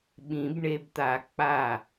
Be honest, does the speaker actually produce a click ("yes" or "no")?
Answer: no